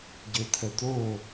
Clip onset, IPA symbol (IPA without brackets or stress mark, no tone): ɟ